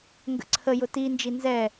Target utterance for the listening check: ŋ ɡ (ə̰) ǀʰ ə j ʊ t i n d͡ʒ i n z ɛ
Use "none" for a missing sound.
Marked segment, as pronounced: ə̰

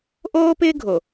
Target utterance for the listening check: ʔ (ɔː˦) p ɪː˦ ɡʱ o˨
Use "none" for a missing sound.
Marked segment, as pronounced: oː˦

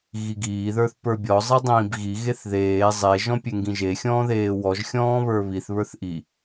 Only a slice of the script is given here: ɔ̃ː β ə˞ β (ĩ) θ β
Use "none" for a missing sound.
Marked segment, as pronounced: i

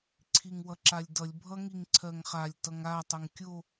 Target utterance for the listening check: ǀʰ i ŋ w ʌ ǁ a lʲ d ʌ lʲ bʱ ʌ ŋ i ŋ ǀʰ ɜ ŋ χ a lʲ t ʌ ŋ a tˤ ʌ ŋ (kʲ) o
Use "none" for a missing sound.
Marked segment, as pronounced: kʲ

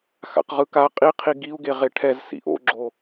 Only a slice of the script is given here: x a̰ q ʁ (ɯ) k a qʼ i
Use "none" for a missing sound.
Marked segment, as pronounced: ɯ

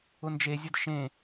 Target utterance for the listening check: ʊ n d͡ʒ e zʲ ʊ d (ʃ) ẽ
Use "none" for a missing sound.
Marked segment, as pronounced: ʃ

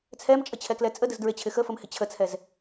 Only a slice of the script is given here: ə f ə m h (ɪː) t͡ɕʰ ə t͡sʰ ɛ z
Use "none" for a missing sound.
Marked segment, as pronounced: ɪ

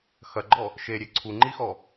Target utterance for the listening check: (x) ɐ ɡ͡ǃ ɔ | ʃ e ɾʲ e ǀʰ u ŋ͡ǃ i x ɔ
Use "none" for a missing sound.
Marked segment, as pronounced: x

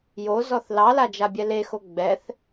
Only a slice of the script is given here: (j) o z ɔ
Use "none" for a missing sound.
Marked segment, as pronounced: j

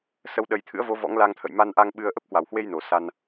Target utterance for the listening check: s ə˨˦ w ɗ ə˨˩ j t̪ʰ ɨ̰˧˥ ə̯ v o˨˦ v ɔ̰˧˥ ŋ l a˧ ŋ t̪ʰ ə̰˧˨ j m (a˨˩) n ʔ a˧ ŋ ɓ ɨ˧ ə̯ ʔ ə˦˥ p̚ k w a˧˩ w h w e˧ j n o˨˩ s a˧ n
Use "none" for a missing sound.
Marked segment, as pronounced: a˧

